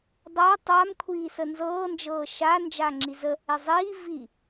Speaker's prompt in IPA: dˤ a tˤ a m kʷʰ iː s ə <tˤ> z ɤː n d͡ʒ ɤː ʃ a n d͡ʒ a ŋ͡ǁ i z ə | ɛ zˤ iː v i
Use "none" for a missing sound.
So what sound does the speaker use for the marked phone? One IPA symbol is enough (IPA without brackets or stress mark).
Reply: n